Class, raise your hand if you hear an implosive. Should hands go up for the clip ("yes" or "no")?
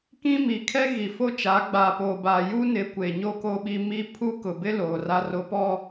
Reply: yes